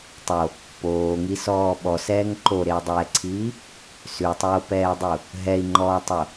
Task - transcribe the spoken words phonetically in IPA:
tˤ o | p oː ŋ i s ɔː ɓ ɔ s ɛː ŋ ǃ o ɾ e u̯ dˤ ɛː ǀʰ iː | s ʉ tˤ oː p ɛː dˤ u | ɦ ɛ i̯ ŋ͡ǃ ɔː tˤ o

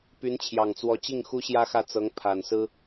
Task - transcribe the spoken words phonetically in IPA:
p y˧˥ n t͡ɕʰ j ɑ˨˩ ŋ t͡s w ɔ˧˥ t͡ɕ i˥˩ ŋ x u˥ ɕ j ä˥ x ä˥˩ t͡s ɤ˧˥ ŋ pʰ a˨˩ n s ɹ̩˥

